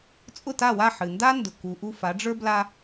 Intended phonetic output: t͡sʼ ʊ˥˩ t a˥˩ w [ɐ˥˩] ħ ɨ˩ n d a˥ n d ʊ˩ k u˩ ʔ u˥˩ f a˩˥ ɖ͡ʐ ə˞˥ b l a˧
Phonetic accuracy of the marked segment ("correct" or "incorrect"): incorrect